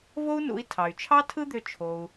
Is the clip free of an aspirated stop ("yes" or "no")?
no